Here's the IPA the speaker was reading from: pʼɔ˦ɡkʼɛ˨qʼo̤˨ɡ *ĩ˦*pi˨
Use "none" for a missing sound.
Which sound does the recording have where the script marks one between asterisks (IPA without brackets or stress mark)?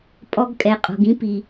ĩ˦